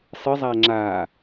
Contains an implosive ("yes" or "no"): no